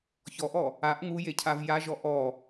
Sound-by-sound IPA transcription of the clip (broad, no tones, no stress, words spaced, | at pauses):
çɔʔɔ | aʔ ŋujecʰav jaʒɔ ʔɔ